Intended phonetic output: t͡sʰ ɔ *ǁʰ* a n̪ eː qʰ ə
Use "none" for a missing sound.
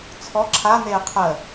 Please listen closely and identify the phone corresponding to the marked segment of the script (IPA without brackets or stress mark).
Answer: ǁʰ